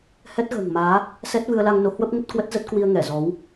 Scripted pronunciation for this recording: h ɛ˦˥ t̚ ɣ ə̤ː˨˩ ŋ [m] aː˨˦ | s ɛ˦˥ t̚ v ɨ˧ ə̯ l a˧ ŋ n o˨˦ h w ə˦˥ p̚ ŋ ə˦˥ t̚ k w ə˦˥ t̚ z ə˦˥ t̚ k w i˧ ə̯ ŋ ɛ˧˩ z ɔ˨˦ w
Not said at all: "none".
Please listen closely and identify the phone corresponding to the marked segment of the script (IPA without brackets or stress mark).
m